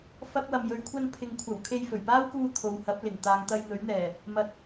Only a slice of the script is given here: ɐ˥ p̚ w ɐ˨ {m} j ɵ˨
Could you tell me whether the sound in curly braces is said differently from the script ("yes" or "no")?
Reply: no